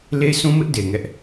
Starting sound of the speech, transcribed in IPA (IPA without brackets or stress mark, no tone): l